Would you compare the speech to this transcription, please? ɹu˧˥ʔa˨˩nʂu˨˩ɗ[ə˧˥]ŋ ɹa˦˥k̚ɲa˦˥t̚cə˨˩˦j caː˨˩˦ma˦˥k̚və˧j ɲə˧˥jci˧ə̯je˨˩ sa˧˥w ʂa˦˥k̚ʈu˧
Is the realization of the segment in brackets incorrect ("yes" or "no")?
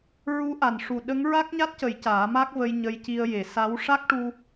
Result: no